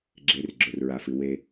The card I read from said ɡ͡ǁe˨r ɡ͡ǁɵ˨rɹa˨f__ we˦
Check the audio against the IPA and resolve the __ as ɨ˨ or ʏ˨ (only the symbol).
ɨ˨